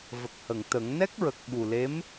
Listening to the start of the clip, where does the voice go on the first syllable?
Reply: low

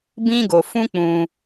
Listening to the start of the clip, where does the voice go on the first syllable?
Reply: high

